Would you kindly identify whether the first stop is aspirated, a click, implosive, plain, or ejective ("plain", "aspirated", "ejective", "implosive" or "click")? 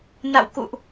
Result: plain